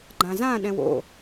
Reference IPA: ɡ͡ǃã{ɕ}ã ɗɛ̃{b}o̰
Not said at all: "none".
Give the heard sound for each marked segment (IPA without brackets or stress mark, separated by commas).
z, w